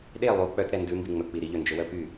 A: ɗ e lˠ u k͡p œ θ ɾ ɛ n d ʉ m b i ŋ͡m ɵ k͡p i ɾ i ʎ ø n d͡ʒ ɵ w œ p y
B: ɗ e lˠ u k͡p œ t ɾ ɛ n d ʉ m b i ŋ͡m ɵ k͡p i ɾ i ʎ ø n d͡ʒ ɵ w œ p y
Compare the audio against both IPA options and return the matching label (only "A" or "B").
B